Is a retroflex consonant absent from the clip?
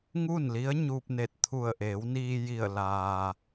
yes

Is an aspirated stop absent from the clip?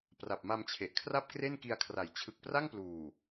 no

